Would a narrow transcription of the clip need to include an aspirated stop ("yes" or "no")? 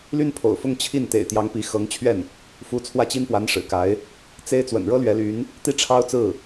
yes